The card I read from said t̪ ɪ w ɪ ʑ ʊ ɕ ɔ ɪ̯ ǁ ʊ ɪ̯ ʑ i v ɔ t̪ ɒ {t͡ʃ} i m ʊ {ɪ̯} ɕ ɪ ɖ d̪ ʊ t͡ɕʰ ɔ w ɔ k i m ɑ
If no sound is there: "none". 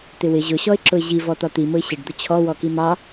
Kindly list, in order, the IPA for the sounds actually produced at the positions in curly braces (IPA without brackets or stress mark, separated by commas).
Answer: t̪, ɪ̯